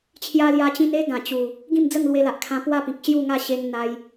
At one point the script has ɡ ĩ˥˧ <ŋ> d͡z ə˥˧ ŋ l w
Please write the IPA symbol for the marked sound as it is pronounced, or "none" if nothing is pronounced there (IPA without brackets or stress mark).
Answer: m